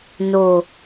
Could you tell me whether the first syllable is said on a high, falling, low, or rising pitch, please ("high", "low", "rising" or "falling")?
low